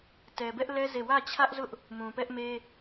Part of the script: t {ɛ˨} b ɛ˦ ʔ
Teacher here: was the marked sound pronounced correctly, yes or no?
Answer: yes